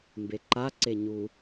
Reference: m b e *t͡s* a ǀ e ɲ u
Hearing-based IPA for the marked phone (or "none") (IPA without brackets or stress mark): ǃ